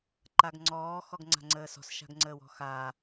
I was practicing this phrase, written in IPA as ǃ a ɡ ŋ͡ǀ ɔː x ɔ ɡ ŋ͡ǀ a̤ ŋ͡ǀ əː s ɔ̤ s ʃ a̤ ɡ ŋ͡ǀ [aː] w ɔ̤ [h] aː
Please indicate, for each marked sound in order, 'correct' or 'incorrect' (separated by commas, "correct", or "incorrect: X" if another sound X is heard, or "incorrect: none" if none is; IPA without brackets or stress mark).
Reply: incorrect: əː, incorrect: x